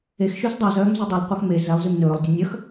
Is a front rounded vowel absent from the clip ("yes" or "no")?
no